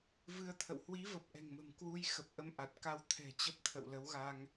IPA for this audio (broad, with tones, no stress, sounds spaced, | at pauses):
v ɨ˧ ə̯ t̪ʰ ə̰˧˨ w h w i˨˦ v ə˨˩ p̚ ʔ ɛ̤˨˩ ŋ m ə̤˨˩ m k w u˧ j x ə˨˩ p̚ ʔ ə˧ m ʔ a˨˩ t̚ k a˧ w t̪ʰ ɛ̤˨˩ t͡ɕ ə˦˥ p̚ t̪ʰ ə̰˧˨ w l ə˨˦ w ɣ a˧ ŋ